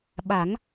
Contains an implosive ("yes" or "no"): yes